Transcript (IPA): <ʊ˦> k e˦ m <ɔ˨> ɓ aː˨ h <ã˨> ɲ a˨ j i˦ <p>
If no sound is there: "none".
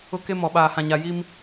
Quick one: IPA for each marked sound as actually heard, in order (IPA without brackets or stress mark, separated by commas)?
ʊ˦, ɔ˨, ã˨, m